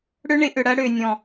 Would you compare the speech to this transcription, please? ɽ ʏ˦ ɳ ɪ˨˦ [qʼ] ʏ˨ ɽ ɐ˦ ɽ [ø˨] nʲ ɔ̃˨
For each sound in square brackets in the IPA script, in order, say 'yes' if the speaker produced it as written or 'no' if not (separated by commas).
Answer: no, yes